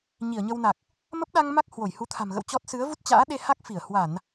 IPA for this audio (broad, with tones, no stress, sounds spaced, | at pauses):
ɲ i˧˩ ə̯ ɲ ə˧ w n a˨˩ k̚ | m ə˦˥ p̚ ɗ a˧ ŋ m a˦˥ k̚ h w o˧˩ j h u˨˦ t̪ʰ a̤˨˩ m ɣ ə̰˧˨ w t͡ɕ ɔ˦˥ t̚ s ɨ˨˦ ə̯ v u˦˥ t̚ t͡ɕ a̰ː˧˥ ɗ e˧ h a˦˥ k̚ f i˧˩ ə̯ h w a˧˩˨ n